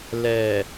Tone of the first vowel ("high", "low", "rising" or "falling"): low